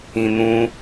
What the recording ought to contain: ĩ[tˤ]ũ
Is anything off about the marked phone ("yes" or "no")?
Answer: yes